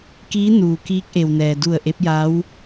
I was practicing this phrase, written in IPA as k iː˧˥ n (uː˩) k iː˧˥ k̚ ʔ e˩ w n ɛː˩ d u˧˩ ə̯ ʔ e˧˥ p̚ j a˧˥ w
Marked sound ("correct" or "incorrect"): correct